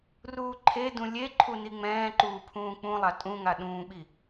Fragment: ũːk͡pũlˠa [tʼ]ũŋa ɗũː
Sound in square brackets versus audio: correct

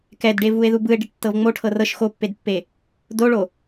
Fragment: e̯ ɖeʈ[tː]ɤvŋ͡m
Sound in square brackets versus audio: correct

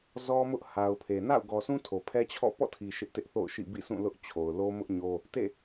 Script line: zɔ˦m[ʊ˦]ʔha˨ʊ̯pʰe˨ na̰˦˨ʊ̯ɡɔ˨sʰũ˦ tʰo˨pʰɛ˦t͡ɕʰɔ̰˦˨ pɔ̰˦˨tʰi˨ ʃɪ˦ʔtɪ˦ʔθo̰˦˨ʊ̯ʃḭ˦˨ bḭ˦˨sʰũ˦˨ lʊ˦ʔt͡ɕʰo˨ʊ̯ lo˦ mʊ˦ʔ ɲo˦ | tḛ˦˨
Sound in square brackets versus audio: correct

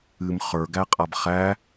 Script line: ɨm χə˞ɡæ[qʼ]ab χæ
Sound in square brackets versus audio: correct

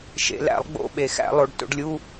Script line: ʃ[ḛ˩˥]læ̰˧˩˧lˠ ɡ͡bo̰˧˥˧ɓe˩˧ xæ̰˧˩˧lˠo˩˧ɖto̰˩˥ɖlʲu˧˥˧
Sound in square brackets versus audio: incorrect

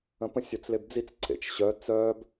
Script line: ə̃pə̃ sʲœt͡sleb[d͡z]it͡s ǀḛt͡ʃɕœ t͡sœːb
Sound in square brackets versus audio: correct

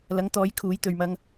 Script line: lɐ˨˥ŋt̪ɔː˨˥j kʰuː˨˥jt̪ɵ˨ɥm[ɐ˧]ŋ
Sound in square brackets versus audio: correct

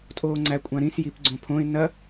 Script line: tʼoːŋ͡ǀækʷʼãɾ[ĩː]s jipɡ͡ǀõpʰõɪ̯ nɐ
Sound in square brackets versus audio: incorrect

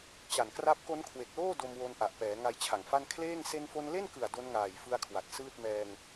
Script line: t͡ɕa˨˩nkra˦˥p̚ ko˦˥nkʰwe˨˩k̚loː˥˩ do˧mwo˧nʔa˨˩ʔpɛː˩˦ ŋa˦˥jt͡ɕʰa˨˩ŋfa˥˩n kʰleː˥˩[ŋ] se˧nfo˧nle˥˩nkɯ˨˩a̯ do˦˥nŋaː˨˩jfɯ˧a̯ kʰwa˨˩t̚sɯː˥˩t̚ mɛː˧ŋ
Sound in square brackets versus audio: correct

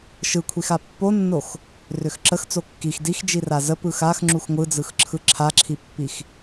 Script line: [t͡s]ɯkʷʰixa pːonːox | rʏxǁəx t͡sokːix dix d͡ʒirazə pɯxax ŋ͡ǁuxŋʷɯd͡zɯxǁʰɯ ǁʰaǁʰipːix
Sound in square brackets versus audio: incorrect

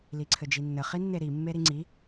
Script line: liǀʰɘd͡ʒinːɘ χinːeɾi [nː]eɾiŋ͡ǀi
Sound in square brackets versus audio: incorrect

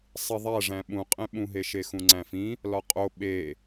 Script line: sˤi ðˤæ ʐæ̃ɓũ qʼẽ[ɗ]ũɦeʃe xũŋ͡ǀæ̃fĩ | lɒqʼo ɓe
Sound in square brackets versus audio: incorrect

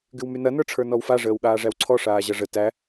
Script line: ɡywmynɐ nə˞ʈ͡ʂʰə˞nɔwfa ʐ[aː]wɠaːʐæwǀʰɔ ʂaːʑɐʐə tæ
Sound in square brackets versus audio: incorrect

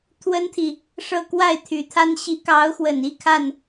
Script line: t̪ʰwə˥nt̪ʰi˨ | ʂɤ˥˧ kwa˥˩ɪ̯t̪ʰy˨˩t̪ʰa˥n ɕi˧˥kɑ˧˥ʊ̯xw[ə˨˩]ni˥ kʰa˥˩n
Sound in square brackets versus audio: correct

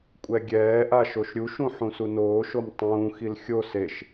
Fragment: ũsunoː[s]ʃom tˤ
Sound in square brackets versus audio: incorrect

